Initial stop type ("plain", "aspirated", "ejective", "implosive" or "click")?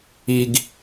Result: plain